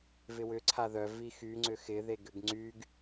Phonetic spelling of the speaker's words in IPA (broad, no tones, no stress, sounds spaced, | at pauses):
v ɪ w ʏ ǀʰ a ð œ v i x y ŋ͡ǀ ʏ x ɪ ð e ɡ ʏ ɡ ŋ͡ǀ y ɡ